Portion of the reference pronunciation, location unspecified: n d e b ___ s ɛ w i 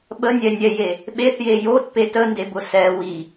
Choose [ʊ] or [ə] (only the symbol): ʊ